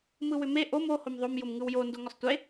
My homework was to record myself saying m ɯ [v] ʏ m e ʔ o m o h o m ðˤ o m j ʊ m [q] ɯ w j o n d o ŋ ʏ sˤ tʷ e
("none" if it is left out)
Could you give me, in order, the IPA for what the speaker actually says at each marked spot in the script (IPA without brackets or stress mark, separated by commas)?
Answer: w, ŋ